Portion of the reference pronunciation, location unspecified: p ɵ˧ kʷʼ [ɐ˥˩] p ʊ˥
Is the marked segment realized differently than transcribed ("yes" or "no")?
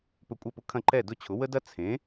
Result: no